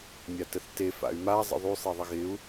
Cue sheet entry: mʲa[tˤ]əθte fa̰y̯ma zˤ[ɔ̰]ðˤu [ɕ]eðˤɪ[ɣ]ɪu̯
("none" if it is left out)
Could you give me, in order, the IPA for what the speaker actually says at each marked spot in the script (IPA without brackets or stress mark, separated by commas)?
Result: t, ə̰, sˤ, ɣ